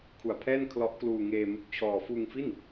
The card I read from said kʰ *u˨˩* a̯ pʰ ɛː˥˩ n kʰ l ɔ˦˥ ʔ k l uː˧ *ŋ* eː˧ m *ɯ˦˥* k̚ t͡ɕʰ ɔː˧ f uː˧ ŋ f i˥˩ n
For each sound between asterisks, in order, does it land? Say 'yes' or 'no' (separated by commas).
yes, yes, no